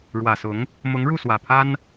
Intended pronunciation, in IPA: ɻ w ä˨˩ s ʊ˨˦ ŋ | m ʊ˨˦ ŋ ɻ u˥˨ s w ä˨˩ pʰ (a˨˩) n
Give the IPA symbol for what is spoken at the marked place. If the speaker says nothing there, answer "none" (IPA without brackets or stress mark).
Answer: a˦